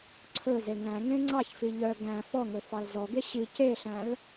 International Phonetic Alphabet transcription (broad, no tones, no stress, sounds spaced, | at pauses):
ǀʰ ɵ z e ŋ æ̃ ŋ ẽ ŋ͡ǀ ɑ ç f i ʎ œ ɡ æ̃ f ɔ ŋ ɵ f ɑ l z ɔ ɡ e ɕ i c e ɬ æ̃ l